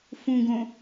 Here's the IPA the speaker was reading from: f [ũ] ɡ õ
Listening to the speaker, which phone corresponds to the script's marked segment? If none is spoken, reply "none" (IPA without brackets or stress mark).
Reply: ũ